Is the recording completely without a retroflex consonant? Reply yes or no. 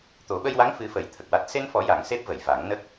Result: yes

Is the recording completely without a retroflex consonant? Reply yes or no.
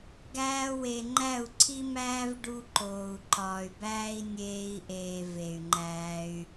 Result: no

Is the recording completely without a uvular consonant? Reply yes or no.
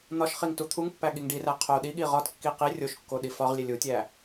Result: no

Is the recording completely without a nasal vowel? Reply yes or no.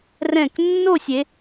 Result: no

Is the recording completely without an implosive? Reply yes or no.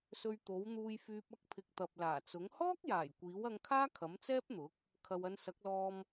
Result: yes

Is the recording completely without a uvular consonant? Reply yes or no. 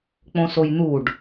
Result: yes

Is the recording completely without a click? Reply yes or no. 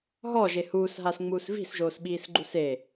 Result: no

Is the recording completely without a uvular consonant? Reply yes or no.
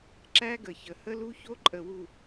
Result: yes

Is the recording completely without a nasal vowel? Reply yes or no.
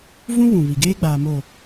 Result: no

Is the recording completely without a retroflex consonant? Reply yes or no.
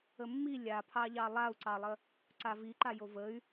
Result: yes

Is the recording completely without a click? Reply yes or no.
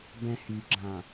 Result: no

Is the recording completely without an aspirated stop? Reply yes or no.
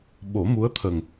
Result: no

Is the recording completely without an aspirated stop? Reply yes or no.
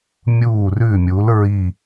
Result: yes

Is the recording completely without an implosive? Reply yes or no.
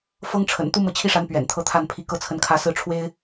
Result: yes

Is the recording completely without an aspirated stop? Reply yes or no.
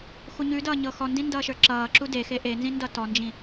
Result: yes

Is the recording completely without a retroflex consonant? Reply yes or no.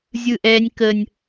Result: yes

